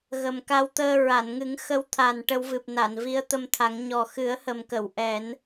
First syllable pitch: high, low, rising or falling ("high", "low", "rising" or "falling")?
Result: low